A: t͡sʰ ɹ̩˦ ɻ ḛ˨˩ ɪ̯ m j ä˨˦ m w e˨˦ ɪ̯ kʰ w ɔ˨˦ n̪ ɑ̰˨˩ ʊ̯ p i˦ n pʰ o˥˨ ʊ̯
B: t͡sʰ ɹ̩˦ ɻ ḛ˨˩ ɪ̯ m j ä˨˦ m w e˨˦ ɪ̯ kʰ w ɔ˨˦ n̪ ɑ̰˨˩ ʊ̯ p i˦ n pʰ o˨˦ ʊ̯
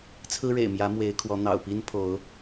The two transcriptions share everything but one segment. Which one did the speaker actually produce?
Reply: B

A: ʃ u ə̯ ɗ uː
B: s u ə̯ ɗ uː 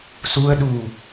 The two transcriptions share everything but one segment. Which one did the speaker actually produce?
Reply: B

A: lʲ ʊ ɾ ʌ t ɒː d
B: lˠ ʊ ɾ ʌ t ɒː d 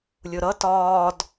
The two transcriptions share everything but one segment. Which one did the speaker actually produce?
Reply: A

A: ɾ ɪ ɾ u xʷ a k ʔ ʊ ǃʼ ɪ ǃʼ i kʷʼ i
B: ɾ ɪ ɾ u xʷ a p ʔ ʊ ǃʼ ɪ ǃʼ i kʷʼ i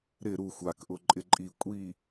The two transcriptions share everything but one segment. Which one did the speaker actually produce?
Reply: A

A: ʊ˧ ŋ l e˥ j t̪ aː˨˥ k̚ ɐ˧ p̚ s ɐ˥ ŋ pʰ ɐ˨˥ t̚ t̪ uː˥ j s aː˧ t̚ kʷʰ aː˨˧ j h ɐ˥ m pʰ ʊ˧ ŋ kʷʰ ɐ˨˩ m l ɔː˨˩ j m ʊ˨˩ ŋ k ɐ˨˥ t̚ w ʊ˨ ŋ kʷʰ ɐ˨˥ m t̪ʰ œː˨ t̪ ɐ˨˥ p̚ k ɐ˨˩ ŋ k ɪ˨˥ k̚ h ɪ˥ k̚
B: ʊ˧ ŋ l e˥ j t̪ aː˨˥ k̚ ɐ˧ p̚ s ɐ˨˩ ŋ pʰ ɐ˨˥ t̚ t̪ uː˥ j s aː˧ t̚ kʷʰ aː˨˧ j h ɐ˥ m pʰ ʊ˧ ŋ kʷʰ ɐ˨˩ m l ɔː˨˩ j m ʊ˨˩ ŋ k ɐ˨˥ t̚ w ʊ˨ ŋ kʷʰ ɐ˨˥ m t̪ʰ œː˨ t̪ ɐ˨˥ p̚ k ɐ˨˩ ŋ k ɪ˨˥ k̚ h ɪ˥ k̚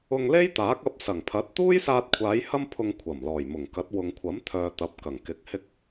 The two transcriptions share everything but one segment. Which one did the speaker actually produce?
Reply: B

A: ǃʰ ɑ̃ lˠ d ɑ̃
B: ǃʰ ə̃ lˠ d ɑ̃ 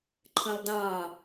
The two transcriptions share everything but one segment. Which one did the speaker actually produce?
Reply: B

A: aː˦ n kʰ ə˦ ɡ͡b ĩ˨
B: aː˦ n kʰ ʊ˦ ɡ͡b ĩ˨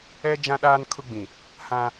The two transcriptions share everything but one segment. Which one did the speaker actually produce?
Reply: B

